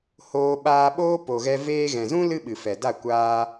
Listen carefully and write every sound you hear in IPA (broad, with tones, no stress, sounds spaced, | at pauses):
h oː˧ ɓ aː˧ ɓ oː˦ p o˨ ɣ ɛ˧ v eː˧ ɣ ɛ̃˨ z ũ˦ l ɨ˦ ɓ ɨ˨ f ɛ˨ d a˦˨ kʷ aː˧